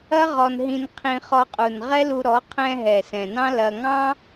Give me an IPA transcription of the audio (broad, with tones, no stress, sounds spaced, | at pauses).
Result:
ɐ˦ ʁ ɔ˧ n ɦ ĩ˧ n qʰ ĩ˧ χ ɔ˧ qʼ u˨ n ʁ ɛ˦ l u˧ ɾ ɔ˨˦ qʰ ɛ̃˧ ɦ ɛ˨ s ɛ̃˨ n ɑ̃˦ l ɐ˧ ŋ ɑ̃˦